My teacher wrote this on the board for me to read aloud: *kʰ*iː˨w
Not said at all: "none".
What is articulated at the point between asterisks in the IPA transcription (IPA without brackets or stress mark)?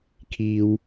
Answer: kʰ